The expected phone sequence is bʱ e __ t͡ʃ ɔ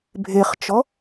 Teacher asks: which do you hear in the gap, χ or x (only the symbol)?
χ